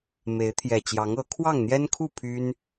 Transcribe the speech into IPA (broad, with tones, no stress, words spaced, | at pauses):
me˨˦ɪ̯t̪ʰjɛ˨˩ t͡ɕjɑ˨˦ŋɤ˨˦ kʰwɑ˥˨ŋn̪jɛ˦nkʰu˥˨ pʰy˦n